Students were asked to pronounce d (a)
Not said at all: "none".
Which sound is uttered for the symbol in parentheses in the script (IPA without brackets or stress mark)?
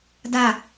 a